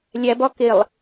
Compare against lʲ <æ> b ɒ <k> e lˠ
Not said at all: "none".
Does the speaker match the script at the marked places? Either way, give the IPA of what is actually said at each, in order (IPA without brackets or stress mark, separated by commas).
æ, k